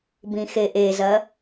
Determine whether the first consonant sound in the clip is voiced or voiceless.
voiced